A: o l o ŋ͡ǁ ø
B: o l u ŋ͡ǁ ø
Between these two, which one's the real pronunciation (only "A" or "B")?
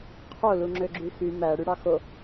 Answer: B